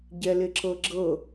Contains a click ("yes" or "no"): yes